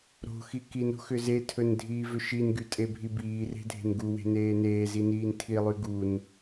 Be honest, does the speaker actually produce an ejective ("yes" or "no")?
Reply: yes